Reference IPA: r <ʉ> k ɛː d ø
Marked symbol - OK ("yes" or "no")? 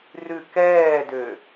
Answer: yes